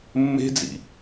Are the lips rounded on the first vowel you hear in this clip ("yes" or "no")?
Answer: no